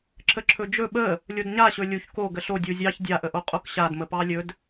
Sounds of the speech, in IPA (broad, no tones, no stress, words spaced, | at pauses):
ǁəǁʰɵd͡ʒɵ ɓə | lʲodɲaɕɵ lʲuç ko ɡəɬo dʲuzʲɑç dʲaʔə ʔoqʼokɕadmə pɑlʲɵd